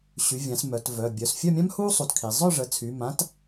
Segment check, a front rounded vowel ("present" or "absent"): present